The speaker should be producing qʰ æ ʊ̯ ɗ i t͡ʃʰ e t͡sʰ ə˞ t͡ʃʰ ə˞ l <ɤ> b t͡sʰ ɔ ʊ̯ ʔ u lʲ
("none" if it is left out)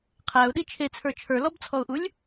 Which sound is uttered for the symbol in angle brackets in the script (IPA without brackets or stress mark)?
ɔ